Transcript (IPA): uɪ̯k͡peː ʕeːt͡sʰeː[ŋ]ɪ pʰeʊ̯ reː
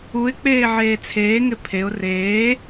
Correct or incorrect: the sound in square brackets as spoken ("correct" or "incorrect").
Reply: correct